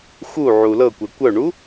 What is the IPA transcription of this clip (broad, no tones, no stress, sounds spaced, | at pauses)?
x u ʕ u l ɤ kʷ ɛ kʷ œ ɳ u